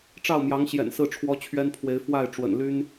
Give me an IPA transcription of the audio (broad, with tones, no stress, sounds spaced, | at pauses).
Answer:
ʈ͡ʂ ɑ˥˩ ʊ̯ m j ɑ˧˥ ŋ ɕ j ɛ̰˨˩ n s ɹ̩˥˩ ʈ͡ʂʰ w ɔ˥ t͡ɕʰ ɥ ɛ˥ n pʰ w e˧˥ ɪ̯ f w a˥˩ ɪ̯ ʈ͡ʂ w ə̰˨˩ n l y˥ n